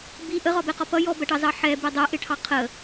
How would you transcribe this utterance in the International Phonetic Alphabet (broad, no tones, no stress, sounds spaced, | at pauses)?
b i ʔ ə ʁ ɒ b ɛ q ɒ p ʌ j ɔ b ɜ ʈ ɑ z ɑ ħ ɛ b i dˤ ɛ ʔ ɪ ʈʰ ɑ qʰ ə